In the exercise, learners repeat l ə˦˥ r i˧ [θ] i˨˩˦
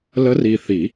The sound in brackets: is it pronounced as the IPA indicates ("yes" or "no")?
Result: yes